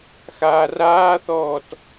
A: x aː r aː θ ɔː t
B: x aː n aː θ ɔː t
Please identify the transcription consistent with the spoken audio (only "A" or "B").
A